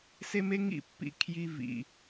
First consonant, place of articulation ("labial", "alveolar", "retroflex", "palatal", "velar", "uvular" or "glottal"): alveolar